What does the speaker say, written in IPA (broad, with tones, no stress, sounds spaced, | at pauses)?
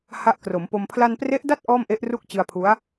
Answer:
h a˦˥ ʔ k r o˩˦ m p o˧ m pʰ l a˧ n p r e˦˥ ʔ d a˥˩ t̚ ʔ ɔː˥˩ m ʔ e˦˥ ʔ r u˥˩ k̚ t͡ɕ ɯ˧ a̯ pʰ u˦˥ a̯